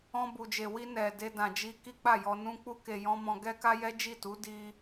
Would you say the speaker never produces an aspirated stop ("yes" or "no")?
yes